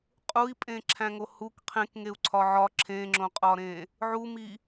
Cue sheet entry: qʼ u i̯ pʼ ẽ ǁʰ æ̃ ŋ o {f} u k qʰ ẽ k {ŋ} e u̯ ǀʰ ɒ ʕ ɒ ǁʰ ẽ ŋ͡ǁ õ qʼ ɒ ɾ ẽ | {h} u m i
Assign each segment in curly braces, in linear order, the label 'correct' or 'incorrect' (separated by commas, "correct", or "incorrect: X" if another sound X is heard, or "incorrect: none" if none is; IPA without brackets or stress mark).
incorrect: h, correct, incorrect: ʕ